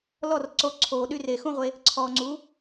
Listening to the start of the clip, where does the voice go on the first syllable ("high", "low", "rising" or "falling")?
falling